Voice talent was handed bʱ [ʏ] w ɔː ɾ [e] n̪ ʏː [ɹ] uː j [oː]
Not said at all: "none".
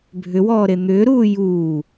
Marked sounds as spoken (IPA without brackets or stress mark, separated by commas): ʏ, e, ɾ, uː